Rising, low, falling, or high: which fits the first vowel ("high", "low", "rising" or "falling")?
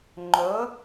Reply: rising